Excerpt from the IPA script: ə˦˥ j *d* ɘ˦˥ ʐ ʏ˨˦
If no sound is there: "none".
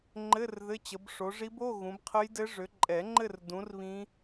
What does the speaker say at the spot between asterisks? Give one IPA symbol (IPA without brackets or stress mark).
d